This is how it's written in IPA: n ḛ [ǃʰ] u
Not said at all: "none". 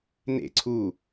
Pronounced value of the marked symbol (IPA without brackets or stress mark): ǀʰ